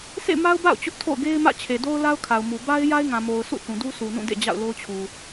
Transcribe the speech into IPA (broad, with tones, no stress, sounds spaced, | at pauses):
s ḛ˦˨ m a˦ ʊ̯ b a̰˦˨ ʊ̯ t͡ɕ ʊ˦ ʔ tʰ o̰˦˨ ʊ̯ ɡ e˦ ɪ̯ m ä̰˦˨ t͡ɕʰ e˨ d o˦ ʊ̯ l a˦ ʊ̯ kʰ a˨ ʊ̯ m u˨ b a˦ ɪ̯ j a˦ ɪ̯ ŋ ã˨ m o˨ ʊ̯ s ṵ˦˨ θ ũ˨ d u˦ sʰ u˨ n ũ˦˨ d ḛ˦˨ d͡ʑ a̰˦˨ ʊ̯ l o˦ ʊ̯ t͡ɕʰ u˨